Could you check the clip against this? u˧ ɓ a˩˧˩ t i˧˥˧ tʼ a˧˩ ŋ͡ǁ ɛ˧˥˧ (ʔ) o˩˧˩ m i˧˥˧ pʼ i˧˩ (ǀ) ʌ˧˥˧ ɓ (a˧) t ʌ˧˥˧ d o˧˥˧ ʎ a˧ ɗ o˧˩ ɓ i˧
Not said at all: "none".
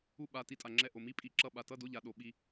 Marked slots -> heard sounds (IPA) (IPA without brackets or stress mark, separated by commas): ʔ, ǁ, a˩˧˩